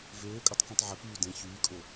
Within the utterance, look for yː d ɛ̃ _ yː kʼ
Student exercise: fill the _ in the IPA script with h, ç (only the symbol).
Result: ç